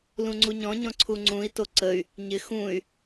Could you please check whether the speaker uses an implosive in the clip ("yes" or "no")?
no